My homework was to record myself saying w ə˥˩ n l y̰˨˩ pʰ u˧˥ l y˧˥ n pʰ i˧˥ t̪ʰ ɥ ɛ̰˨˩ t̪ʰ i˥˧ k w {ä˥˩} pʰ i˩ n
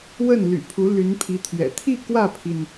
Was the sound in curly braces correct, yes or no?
yes